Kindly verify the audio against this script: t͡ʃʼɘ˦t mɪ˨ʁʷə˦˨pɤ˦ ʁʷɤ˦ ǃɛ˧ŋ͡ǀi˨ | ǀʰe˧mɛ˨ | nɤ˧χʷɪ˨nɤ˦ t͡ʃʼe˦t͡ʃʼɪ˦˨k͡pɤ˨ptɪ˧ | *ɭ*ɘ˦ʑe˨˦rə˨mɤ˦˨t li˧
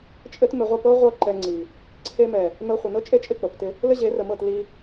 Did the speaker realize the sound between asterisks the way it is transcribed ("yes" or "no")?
no